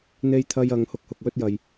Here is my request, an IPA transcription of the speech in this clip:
n̪ e˧ j t̪ʰ ɐ˧ j ɐ˨˧ ŋ h ʊ˨ k̚ h ʊ˨ k̚ w ɵ˧ t̚ j ɐ˨ j

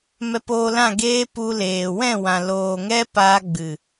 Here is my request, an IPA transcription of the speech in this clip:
m ɛ˧ p oː˧ l ã˦˨ ɡ eː˦ p u˧ l eː˨ w ɛ̃˦˨ w ã˨ l oː˨ ŋ ɛ˦ p aː˧ ɡ͡b ɨ˨

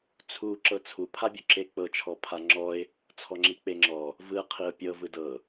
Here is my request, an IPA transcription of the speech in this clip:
t͡sʰ u ǁ ɤ t͡sʰ u pʰ a bʲ o ǁ e k͡p ɤ t͡ʃʰ ɔ pʰ a ŋ͡ǁ ɔ ɪ̯ | t͡sʰ ɔ ŋ͡ǁ i k͡p e ŋ͡ǁ ɔ | v ɯ qʰ i ʊ̯ pʲ ɤ v ɯ d ɤ

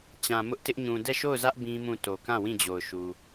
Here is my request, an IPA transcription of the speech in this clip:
t͡ɕ ã˨ m ʊ˦ ʔ t ɪ˦ ʔ ɲ ũ˨ d ɛ˦˨ ʃ o˦˨ ʊ̯ z ä˦ ʔ b ĩ˦ m ũ˦˨ t o˨ k ã˦˨ w ĩ˦˨ d͡ʑ o˨ ʊ̯ ʃ u˨

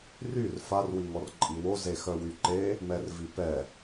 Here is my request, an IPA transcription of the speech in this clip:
r y r f a r w i ŋ ɔ r ǃʼ i w o z e x œ w y ǃ e | m ɛ r v i p ɛ

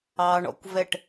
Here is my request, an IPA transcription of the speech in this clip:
ɑ ɳ ɔ̰ kʷ v ɛ ʈ

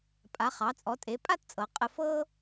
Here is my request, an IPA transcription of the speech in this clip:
pʼ a˩˧ χ ɑ˩˧ t͡sʼ ɔ˩˧ tʼ e˩˧ pʼ a˥˧ t t͡sʼ ɤ˩˧ qʼ ə˧ f ɤ˥

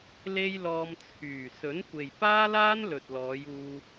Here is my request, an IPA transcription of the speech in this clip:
l e˥ j l ɔː˧ m t͡sʰ yː˨˩ s ɵ˨˥ n kʷ e˨ j p aː˥ l aː˥ n l ɵ˨ t̚ l ɔː˨˧ j uː˧

